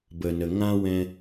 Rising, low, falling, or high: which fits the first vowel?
low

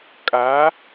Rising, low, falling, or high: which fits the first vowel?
rising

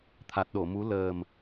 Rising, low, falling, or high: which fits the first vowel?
low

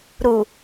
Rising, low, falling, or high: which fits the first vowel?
low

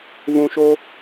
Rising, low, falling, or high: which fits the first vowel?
low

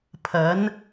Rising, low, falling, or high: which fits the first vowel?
rising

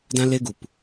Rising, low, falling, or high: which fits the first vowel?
high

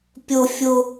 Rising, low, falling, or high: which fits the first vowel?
high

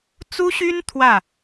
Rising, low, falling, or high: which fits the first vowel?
high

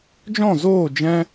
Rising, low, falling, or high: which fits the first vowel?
falling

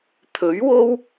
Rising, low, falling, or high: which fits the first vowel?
rising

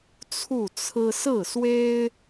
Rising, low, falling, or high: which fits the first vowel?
falling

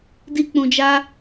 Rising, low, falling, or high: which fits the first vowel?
high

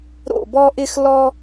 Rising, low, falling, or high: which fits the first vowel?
falling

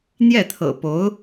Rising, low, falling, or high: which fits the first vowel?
falling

